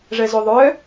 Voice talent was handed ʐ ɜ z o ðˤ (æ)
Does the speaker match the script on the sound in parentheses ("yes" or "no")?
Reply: no